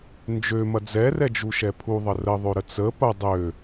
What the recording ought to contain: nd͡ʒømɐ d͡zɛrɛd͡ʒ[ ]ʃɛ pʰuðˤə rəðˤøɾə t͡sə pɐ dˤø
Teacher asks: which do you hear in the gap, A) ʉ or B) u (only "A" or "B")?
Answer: B